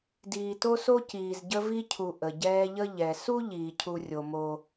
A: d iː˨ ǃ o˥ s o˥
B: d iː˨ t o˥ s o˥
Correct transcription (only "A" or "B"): B